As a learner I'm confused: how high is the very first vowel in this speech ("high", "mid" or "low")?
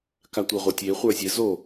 low